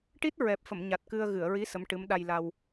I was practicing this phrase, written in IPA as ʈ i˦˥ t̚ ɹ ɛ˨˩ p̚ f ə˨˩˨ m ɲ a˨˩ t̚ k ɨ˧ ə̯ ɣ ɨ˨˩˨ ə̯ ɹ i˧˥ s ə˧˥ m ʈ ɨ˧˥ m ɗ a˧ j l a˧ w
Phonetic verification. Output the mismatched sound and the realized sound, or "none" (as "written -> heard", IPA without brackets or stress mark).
none